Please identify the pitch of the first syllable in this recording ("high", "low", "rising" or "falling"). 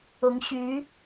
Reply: rising